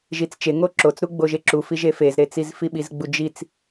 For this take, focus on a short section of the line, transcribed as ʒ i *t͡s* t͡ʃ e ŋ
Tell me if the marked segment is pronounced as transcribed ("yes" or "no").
yes